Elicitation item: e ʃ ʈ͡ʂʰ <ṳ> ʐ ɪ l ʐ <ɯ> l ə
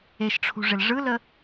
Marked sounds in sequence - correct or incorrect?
correct, correct

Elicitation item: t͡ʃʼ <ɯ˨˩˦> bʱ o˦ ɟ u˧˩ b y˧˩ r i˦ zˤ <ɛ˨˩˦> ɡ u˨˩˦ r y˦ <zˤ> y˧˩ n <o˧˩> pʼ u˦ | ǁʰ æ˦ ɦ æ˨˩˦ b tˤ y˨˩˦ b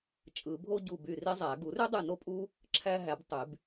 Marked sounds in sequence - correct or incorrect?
correct, incorrect, incorrect, incorrect

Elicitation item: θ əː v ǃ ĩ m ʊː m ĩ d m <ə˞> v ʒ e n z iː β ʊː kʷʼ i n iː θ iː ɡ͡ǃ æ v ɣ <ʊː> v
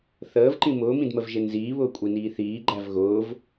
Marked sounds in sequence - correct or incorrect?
incorrect, correct

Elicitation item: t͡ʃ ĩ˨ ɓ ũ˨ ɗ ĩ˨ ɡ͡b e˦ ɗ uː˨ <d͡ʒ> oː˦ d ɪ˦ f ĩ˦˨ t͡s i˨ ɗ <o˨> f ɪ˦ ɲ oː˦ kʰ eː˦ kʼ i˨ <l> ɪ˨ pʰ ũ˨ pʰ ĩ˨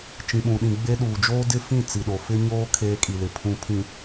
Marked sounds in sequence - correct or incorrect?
correct, correct, correct

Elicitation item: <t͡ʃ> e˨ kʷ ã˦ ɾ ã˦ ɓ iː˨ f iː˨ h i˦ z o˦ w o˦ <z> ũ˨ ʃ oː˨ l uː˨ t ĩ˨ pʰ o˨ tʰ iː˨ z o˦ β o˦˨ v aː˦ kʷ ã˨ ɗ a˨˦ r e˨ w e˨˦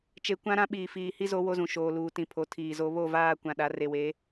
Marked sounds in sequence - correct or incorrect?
correct, correct

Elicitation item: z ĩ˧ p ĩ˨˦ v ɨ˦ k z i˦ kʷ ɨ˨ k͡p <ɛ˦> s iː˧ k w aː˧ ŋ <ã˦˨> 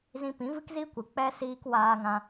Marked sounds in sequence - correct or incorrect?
correct, incorrect

